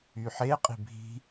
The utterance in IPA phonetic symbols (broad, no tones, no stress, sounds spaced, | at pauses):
y ħ e qʼ i̤ bʱ i̤